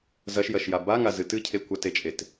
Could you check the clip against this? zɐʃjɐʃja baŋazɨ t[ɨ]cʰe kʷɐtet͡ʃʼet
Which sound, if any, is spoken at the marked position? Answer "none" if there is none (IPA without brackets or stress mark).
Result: ɨ